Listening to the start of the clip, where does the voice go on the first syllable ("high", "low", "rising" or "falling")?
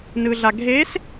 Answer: low